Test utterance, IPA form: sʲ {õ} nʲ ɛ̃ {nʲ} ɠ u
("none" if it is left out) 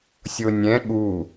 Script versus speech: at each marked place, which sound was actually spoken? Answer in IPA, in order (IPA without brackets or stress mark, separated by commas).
o, none